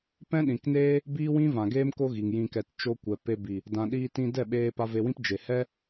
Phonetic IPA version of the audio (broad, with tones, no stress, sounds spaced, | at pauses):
p ɛ̃˦ ɗ ĩ˨ k n eː˦ | b iː˦ w ĩ˦ v ã˨ ɡ eː˦ m k o˦ ɣ i˨ ŋ j ĩ˧ k ɛ˧ t t͡ʃ o˧ kʷ ɛ˨ p e˧ b i˨ | d ã˨ ɗ iː˧ t ĩ˧ d ɛ˦˨ ɓ eː˧ p a˧ v e˧ w ĩ˦ p d͡ʒ e˨ h ɛ˦